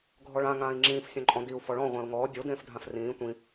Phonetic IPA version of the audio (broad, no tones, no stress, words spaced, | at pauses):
ɡʱɔɭã ŋãːi̯ŋ͡ǁĩːf sʲõǃʼɔ̃diu̯ fɔɭɔ̃ ʁʷẽːu̯ŋɔː dʲo dẽːfdʱãfrĩː tʷĩ